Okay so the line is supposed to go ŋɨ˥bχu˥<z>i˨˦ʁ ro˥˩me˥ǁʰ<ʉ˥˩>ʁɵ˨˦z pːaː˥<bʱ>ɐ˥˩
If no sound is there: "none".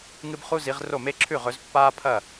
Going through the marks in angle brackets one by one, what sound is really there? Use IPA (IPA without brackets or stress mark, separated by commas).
z, ʉ˥˩, pʰ